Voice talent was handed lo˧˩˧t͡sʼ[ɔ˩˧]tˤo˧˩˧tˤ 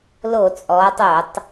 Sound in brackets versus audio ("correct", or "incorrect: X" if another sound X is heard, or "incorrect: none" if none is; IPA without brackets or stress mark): correct